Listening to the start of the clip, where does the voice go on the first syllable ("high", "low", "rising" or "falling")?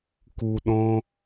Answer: low